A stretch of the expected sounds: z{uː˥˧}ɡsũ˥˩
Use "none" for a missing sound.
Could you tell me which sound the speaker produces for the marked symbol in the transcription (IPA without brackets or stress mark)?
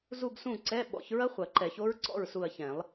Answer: u˥˧